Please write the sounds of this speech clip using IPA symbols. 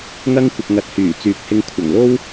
ŋ ɐ˥ ŋ kʷ ɪ˨ k̚ ŋ ɐ˨ t̚ h yː˨˩ t͡s yː˨˥ k̚ h ɪ˧ ŋ kʷʰ ɐ˨˩ ŋ l o˥ w

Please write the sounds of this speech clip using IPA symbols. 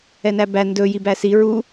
ɛ n æ b æ n d ɵ j i b æ s i ɹ u

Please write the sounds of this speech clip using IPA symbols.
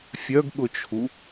fʲ œ ɡ ɠ ʊ t͡ʃʰ u

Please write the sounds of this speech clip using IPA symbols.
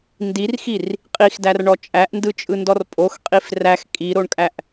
n d i r x i r | qʼ i x d æ r ɳ ɔ t͡ʃʼ æ ʔ n d ɯ t͡ʃʼ ɯ n d ɔ r pʼ o x qʼ i f r æ x kʼ i ɾ o ɳ kʼ æ ʔ

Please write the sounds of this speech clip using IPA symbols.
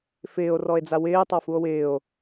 f ɪː o̯ r ɔ e̯ d͡z a w ɪː tˤ a f u o̯ w ɪː o̯

